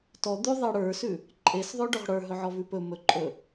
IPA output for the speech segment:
t ɔ d̪ ʉ ðˤ e ɽ ə˞ s ʉ | ǃʼ e s ðˤ ø ɖ ɵ ʁ ɽ ə˞ ɦ ɵ ʕ ɔ v ʉ p ɵ m ɵ ǃʼ ɵ

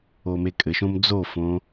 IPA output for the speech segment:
o m e kʼ ɘ ʃ õ m d͡z o f õ

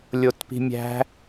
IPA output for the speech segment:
lʲ o t p i̤ mʲ æ̤

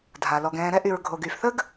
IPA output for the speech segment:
dʱ a˩ l ɔ˨ ɡ ɛ̃ː˨ ɾ ɛ˥ ʔ y˨ ɹ ɡʱ o˩ ɡ y˩ f θ ə˥ ɡ

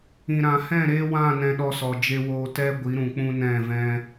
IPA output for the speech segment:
ĩ˨ ɾ ã˨ h ɛ̃˦˨ ɾ eː˦ w ã˦˨ n ɛ̃˧ ɗ ɔ˧ s ɔ˨ d͡ʒ e˧ w oː˦ t ɛ˦ ɡʷ i˨˦ ɾ ũ˨ k͡p ũ˦ n ɛ̃˦˨ v ɛ̃˦

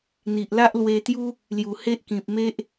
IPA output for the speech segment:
n̪ i˨ ʔ l a˦ ʔ l w e˧ t̪ j u˦ | l j u˨˩ h e˦ ʔ k ĩ˨ p̚ m e˦ ʔ

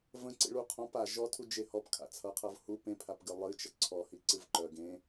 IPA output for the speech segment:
v ə̃ ǀ ḭ ɭ u qʰ ɔ̃ p a ʒ ɔ tʰ u d͡ʒ e h ɔ p kʰ a̰ t͡sʰ ʌ qʰ ʌ v h u p ẽ pʰ a p ɡ ɨ lˠ ɨ t͡ʃ ʌ ǀʰ ɔ h i ǀ ɨ v ǃ œ ɡ ẽ

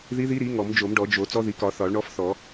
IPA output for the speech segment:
ð i˧˥ ð i˧˥ ɾ i˩˥ ŋ ɔ˨˩˦ m d͡ʒ o˨˩˦ m ɖ ɔ˨˩˦ d͡ʒ o˨˩˦ t͡s ɔ˧˥ ð i˩˥ k ɒ˨˩˦ θ ɒ˨˩˦ ɭ ɳ ɔ˧˥ f θ ɔ˨˩˦

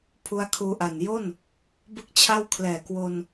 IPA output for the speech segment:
pʰ u˦˥ a̯ kʰ uː˧ ʔ a˨˩ n j o˥˩ n | b ɯ˥˩ k̚ t͡ɕʰ a˥˩ w kʰ l ɛː˨˩ k w o˧ n

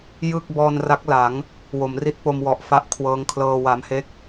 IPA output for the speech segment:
j ɯ˥˩ k̚ b ɔː˧ n r a˦˥ k̚ l a˩˦ ŋ | w o˩˦ m r i˦˥ t̚ p o˧ m w ɔ˨˩ ʔ f a˥˩ ʔ kʰ w ɤː˦˥ ŋ kʰ l ɤː˧ w a˧ m h e˥˩ k̚

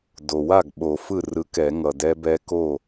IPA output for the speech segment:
d o˩ w a˥˩ ɡ ɓ o˨˩˦ f ɯ˥˩ r ɯ˨˥ k ɛ˨˩˦ ŋ ʌ˩ d ɛ˦˥ b ɛ˦˥ k o˥˩

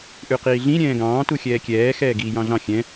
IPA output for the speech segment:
ʔ ʉ q iː ɮ ĩ ɾʲ ɛ̃ː ɡ ɑ̃ː t u xʲ ɛː kʲ ɛː x ɛː ɡ iː j ɑ̃ ɮ ɑ̃ xʲ ɛ̃

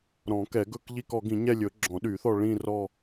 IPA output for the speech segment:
ɾ ɔ̃˨˩˦ k ɛ˨˩˦ ɡ ɵ˦˨ k ʎ i˦˨ k ɔ˨˩˦ ɡ ĩ˨˩˦ ɲ ɛ˦˨ lʲ ɵ˨˩˦ ɡ͡ǁ ɔ̃˨˩˦ ɗ y˨˩˦ θ ɔ˦˨ ɭ ĩ˦˨ r ɔ˦˨

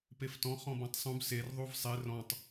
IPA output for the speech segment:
p e f t ɔ̃ χ ɔ̃ b ɔ̃ tˤ sˤ ũ b s e r ðˤ u v sˤ e r ɔ̃ tˤ

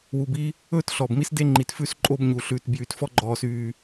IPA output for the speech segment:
w u˨ b i˦ | ɵː˦ t ɬ ɔ˨ b m i˦ s d e˦ ŋ͡ǃ i˨ t f ʉ˦ s ǃʼ o˦ b ɲ u˨ ɬ ʉ˨ t b j y˨ t f ɔ˦ ɡ͡ǃ ɔː˨ s yː˨

